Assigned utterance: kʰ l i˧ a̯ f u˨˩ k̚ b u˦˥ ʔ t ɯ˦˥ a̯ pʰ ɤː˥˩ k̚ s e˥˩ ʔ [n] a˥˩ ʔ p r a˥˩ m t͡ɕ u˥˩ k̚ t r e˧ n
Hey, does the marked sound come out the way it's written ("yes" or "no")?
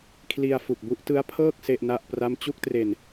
yes